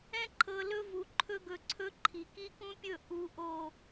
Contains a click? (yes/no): yes